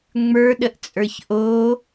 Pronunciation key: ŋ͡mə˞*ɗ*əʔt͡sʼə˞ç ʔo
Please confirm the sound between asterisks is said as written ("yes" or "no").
yes